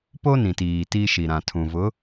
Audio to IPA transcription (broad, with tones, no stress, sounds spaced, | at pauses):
p o˦ n ĩ˨ t iː˨ t i˦ ʃ i˨ ɾ ã˨ tʰ ũ˨ v ʊ˨˦